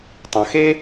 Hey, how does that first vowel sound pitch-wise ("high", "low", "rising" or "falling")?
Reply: low